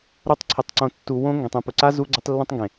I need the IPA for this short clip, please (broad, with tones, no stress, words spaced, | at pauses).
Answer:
ɾo˧tˤǀʰɪ˨tˤǀõ˨ tːu˨wõ˧ ŋɡẽ˨tˤẽ˧ pʊ˨ǀa˦ zu˧ɡ͡ǀʊ˧tˤ lːũ˧tˤŋɡẽ˨